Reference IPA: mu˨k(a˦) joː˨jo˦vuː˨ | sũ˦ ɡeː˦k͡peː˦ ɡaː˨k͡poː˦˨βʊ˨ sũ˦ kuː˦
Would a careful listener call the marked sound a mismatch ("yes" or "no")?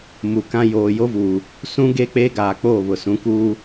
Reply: yes